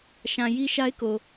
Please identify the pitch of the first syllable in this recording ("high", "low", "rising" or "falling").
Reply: low